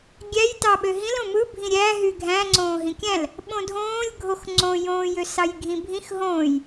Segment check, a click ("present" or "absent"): present